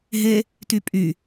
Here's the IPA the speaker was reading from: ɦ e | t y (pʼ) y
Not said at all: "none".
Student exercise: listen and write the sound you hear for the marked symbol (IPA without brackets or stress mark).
pʼ